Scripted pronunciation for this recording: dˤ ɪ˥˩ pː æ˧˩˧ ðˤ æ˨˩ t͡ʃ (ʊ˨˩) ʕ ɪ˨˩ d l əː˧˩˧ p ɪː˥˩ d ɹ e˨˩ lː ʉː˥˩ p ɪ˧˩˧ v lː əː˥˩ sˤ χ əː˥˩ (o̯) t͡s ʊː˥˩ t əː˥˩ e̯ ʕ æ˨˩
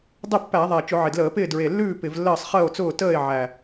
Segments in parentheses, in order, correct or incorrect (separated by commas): incorrect, correct